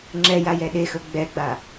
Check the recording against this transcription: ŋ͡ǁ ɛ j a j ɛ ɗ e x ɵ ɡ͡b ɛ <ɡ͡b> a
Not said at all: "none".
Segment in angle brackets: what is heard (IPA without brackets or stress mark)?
ɡ͡b